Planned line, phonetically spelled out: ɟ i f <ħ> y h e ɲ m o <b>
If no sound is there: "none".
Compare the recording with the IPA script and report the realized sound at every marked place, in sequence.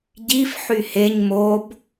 ħ, b

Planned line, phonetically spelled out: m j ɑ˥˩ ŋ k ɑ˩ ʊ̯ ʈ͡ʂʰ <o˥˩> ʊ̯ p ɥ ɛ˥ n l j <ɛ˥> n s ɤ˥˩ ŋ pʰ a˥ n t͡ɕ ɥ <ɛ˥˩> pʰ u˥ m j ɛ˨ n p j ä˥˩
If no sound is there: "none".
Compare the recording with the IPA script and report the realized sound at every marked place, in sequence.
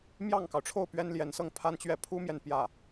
o˥˩, ɛ˧˥, ɛ˥˩

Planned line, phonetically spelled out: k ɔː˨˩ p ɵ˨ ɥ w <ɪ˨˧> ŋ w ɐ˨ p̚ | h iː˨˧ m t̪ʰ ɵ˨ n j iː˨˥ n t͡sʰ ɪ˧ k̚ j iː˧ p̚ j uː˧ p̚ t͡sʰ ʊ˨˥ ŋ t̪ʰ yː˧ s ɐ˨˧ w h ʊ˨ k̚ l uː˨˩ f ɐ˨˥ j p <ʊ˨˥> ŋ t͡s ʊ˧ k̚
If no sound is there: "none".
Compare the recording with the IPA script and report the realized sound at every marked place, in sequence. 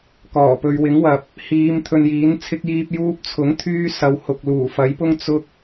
ɪ˨˥, ʊ˥

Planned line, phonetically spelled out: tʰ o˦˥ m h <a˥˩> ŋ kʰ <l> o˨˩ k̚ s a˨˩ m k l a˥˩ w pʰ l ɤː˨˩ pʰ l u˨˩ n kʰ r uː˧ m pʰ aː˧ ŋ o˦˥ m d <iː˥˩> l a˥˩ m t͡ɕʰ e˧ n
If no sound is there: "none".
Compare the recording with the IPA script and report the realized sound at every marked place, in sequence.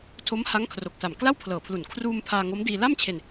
a˦˥, r, iː˧

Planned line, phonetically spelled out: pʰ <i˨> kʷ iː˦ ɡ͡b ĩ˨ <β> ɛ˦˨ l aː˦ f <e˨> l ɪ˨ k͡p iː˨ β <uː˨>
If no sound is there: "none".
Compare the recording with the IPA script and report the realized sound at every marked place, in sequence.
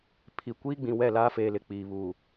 i˨, w, eː˨, uː˨

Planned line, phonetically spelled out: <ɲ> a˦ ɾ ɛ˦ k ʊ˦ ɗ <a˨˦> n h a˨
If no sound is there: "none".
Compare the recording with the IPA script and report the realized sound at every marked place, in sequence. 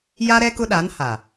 j, a˨˦

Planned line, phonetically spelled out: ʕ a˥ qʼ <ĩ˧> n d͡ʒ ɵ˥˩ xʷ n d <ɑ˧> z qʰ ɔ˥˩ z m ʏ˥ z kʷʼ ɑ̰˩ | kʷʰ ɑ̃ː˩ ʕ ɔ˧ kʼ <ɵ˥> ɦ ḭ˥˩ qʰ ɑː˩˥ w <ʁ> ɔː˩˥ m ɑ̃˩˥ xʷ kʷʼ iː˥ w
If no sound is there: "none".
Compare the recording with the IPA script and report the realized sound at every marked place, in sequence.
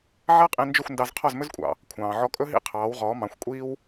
ĩ˧, ɑ˧, ɵ˥, ʁ

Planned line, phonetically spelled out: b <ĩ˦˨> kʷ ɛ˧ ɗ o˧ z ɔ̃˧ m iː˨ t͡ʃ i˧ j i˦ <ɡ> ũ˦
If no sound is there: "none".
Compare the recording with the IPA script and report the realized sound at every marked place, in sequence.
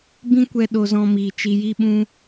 ĩ˦, ɓ

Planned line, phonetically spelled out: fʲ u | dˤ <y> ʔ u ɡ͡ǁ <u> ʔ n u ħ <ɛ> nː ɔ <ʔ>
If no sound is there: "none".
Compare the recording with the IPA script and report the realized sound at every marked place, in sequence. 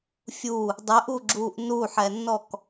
y, uː, ɛ, k

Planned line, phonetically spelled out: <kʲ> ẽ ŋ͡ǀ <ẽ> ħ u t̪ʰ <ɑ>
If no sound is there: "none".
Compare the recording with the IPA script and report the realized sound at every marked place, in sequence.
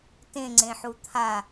t, ẽ, a

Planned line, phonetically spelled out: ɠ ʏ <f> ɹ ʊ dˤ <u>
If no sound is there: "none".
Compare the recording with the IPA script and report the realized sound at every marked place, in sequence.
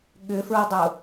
f, ʊ

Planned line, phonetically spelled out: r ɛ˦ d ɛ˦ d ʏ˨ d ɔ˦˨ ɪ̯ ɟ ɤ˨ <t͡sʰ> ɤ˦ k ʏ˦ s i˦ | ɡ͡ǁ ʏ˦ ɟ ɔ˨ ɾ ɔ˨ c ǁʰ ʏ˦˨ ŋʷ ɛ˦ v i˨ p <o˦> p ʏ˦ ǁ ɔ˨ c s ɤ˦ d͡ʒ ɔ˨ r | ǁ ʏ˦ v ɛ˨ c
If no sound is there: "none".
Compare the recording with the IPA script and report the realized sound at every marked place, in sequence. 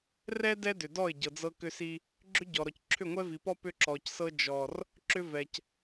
d͡z, ɔ˦

